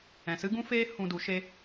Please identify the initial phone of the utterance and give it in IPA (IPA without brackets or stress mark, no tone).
ɛ̃